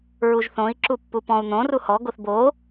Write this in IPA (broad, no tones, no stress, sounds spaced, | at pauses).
ɹ u ʒ θ õ i̯ ǁ u pː u p ɔ̃ u̯ n̪ õ r u h ɔ ɡ o θ b o